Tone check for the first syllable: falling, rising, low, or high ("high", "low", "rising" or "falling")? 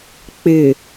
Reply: low